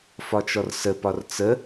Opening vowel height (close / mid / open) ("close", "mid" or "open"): open